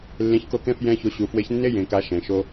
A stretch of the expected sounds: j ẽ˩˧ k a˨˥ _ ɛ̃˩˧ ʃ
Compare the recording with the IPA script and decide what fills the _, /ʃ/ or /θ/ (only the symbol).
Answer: ʃ